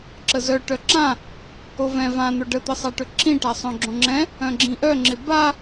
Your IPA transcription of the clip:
ǁ ə z œ ʈ œ ǁ ã | o v ɛ̃ v ã n̪ o ɖ ə t̪ ə sˤ a ʈ ɵ ǁ ĩ ʈ a sˤ œ̃ ɡ͡ǁ õ ŋ͡ǁ ɛ̃ | œ̃ ɡ͡ǁ ĩ ʔ œ ŋ͡ǁ ɪ b a

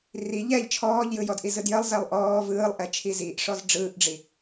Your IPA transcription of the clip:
r i ʎ ɛ ʎ t͡ʃʰ ɔː ʎ j ɯ j ɔ d ʔ i z ɯ d j ə lˠ z ɛ lˠ ʔ ɔː v ɯː lˠ ʔ ɛ t͡ʃʰ i z i ʔ ʂ ɔ z ɖ͡ʐ ɯː ʔ ɖ͡ʐ i

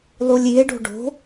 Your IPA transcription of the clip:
lˠ u lʲ i e̯ ɖ o̤ ɖ o̤

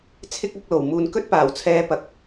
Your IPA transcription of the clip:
t͡sʰ ɪ˥ k̚ ɐ˨˥ k̚ l o˨˩ w m uː˨ n k ɵ˥ t̚ p aː˨˩ w t͡sʰ ɛː˧ p ɐ˨˥ k̚

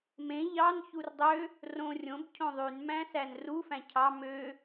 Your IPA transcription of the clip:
m ẽ ʎ ɑ n ç u r dˤ ø | r õ rʲ õ b cʰ õ ðˤ y n m æ̃ s æ n r u f æ̃ cʰ ɑ m ø

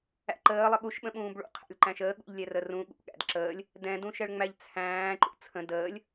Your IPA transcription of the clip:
æ̰ ǃ əː lˠ ə ɠ u ʃ ɓ ə̃ ɓ ũː b ɭ ṵ qʰ æ̰ lʲ ǃ æ̃ ʃ əː ɠ ṵ ʎ lʲ ɛ r ə r ũ ɠ ṵ ɠ æ̰ d ǁ əː lʲ | d ɛ̃ d ũ ʃ ɛ ɭ ŋ͡m æ ʎ t͡sʰ æ̃ː ǃ ṵ t͡sʰ ə̃ d əː lʲ

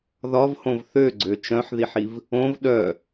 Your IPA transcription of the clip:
ð ɒ v h õ v θ ø ɡ͡ǀ ø t͡ʃ œ̃ ħ ð i ħ i v | õ v ɗ œ

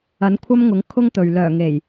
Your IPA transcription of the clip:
ɐ˨˥ n kʷʰ ɐ˥ m ŋ ʊ˨˥ ŋ kʰ ʊ˥ ŋ t̪ ɵ˨ ɥ l œː˨˩ ŋ e˨˩ j

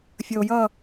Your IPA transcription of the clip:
fʲ ə˨ o̯ j ʌ˦˨

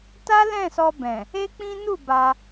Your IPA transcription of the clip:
t a˦ l ɛ̃˦˨ s ɔ˧ b ɛ̃˨ | e˦ k͡p ĩ˦ n u˦˨ b a˧

